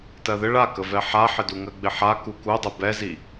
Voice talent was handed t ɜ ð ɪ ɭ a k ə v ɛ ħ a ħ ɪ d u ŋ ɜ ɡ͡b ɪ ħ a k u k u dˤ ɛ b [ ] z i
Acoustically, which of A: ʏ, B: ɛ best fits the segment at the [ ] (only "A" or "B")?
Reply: B